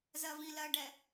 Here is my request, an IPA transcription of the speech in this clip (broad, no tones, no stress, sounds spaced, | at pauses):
z ɜ v ĩ l ɜ ɖ ɛ